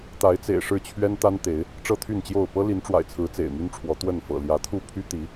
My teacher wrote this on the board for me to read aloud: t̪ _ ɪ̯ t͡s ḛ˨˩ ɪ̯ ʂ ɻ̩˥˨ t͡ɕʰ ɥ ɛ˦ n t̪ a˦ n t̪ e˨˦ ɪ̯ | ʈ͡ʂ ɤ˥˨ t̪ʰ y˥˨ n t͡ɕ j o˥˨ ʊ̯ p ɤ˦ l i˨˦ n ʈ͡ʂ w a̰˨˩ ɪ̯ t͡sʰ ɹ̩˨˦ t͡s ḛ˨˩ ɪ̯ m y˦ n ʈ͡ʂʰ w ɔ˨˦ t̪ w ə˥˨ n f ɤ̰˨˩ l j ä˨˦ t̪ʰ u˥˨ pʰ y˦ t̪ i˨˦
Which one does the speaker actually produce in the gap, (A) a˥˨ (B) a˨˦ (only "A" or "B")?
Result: B